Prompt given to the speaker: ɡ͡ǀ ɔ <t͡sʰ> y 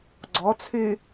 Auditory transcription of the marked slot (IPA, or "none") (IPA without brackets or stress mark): t͡sʰ